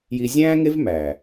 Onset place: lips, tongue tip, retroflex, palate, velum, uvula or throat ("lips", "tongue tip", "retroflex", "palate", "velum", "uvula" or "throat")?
palate